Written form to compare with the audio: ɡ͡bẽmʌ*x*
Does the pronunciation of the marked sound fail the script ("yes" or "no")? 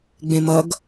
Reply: yes